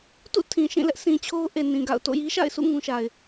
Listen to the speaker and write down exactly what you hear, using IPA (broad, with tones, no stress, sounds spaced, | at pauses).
t ṵ˦˨ tʰ ĩ˨ ʃ ĩ˦˨ l ɛ˦ ʔ s ĩ˨ t͡ɕʰ o˦ ʊ̯ ʔ e˨ n ĩ˨ ɡ a̰˦˨ ʊ̯ t o̰˦˨ j i˦ ʃ a̰˦˨ ɪ̯ s ṵ˦˨ ŋ ũ˦ ʃ a˨ ɪ̯